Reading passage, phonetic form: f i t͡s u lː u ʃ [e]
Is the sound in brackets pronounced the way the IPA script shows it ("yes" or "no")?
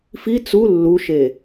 yes